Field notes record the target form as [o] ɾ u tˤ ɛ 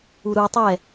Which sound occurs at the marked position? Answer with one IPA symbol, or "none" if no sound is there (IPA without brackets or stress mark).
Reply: u